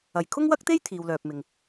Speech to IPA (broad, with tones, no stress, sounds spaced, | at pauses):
ɐ˨˩ j kʰ ʊ˥ ŋ w ɐ˥ k̚ t̪ e˥ j t̪ʰ iː˨ w l œː˨ p̚ m ɪ˨ ŋ